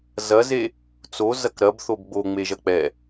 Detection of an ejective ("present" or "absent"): absent